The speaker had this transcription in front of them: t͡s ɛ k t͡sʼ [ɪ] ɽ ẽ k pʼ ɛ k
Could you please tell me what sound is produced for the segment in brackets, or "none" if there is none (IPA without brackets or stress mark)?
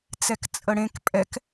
ə